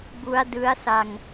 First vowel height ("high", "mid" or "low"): high